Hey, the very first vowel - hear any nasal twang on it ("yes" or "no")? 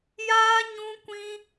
no